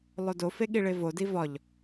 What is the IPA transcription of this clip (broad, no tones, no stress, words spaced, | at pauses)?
lˠodofe ɠiɭevodi vɒʎ